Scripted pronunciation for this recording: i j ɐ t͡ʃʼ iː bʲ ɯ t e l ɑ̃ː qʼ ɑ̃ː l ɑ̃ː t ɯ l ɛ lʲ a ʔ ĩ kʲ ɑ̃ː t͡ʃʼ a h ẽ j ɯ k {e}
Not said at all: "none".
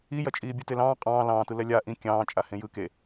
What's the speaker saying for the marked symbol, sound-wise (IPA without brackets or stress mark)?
e